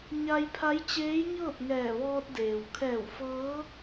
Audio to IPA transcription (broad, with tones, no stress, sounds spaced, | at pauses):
ɲ a˧ j pʰ a˧˥ j t͡ɕ eː˧˥ j ɲ ɤː˥˨ p̚ ŋ ɛː˧˩ ʋ ɔː˧ t̚ d eː˩ w kʰ ɛː˧˩ w f ɤː˧˥